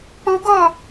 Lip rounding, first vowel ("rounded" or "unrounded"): rounded